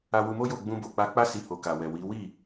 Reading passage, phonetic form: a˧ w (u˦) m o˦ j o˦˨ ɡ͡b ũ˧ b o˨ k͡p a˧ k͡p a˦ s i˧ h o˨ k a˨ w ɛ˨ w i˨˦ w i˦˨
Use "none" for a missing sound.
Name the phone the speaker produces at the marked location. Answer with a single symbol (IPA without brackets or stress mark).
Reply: u˧